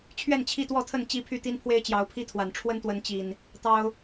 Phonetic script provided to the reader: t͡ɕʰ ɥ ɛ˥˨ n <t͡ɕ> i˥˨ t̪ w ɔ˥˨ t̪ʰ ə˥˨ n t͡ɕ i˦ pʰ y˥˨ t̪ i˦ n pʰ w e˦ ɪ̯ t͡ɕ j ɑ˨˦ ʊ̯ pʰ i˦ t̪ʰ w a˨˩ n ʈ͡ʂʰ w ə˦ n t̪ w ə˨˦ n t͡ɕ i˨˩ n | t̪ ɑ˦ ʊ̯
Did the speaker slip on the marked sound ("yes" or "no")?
yes